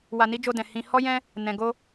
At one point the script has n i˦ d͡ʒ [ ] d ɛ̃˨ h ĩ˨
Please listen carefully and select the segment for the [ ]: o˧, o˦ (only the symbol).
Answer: o˧